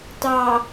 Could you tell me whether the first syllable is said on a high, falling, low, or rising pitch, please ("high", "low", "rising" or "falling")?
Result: low